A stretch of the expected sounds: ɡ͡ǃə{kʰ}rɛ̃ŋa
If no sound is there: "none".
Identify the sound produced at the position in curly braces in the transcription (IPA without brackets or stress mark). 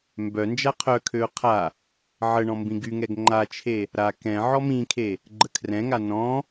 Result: kʰ